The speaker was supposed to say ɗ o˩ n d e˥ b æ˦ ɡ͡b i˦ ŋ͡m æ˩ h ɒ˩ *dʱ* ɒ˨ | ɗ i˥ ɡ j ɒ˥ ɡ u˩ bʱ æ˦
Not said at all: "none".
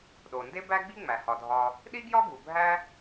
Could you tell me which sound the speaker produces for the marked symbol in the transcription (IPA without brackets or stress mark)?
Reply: dʱ